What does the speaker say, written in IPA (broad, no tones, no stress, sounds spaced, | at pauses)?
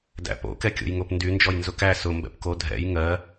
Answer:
d æ̰ p o̰ k ɛ kʲ o̰ j ŋ o p n d y n d͡ʒ ɔ j n z ʊ k æ s ʊ m b ɛ̰ p k o dʱ ɛ̰ j ŋ ɜ